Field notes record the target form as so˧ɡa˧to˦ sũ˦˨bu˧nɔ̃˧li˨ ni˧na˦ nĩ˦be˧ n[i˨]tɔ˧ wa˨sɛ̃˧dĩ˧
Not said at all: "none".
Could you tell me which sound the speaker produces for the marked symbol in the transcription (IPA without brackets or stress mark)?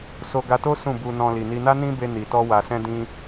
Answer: i˨